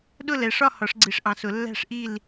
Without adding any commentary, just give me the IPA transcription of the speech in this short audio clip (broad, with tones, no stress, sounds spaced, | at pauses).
ɗ ʊ˥˨ l ɛ˩˧ ʂ ɒ˥˨ h ɒ˩˧ ʂ ɡ͡ǀ i˩˧ ʂ ʔ ɑ̃˩˧ s ʊ˩˧ lː æ̤˥˨ ʂ ʔ i˥˨ l